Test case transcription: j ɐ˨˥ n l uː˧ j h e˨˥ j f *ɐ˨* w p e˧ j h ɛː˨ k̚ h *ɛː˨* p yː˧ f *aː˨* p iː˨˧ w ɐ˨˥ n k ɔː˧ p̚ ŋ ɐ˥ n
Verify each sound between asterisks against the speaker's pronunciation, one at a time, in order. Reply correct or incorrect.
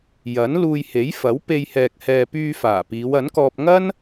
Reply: incorrect: ɐ˨˥, correct, incorrect: aː˨˩

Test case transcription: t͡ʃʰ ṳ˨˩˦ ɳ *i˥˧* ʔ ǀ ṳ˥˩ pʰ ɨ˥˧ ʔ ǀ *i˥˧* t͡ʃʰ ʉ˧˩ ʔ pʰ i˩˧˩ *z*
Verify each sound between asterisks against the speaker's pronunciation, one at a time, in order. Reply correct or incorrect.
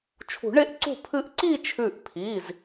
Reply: incorrect: e˥˧, correct, correct

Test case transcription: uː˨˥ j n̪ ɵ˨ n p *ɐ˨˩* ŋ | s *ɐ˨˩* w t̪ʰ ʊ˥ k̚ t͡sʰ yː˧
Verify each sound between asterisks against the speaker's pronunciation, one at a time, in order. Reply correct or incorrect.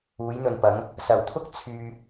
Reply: incorrect: ɐ˨˥, correct

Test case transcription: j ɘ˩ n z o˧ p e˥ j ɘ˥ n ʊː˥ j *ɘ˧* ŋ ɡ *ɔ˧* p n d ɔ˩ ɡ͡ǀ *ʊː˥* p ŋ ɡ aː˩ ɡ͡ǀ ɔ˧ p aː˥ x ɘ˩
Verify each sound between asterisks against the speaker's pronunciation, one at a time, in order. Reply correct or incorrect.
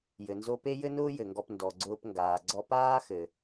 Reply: incorrect: ɘ˩, correct, incorrect: ʊː˧

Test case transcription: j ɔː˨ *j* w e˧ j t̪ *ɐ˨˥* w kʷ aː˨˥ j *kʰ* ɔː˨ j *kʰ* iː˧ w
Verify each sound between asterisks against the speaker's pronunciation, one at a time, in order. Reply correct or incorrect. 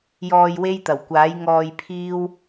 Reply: correct, incorrect: ɐ˨˩, incorrect: ŋ, incorrect: pʰ

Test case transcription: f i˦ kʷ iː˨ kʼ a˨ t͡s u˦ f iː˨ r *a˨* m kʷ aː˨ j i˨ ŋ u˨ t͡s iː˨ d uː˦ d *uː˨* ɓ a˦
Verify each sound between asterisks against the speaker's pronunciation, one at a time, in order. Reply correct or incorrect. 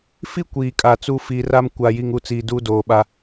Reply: incorrect: a˦, incorrect: oː˨

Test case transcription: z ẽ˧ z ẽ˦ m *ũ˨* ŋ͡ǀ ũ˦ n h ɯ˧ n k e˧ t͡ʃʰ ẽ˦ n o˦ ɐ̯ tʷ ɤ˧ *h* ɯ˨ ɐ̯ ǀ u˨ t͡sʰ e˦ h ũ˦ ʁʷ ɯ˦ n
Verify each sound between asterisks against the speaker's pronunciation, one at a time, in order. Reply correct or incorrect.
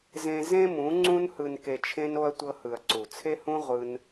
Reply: incorrect: ũ˨˦, correct

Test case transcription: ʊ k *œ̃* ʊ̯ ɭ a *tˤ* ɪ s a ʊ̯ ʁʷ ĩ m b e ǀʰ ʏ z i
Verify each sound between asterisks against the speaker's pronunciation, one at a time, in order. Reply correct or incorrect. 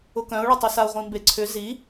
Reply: correct, correct

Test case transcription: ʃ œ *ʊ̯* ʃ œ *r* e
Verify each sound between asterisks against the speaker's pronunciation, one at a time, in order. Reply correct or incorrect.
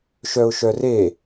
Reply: correct, correct

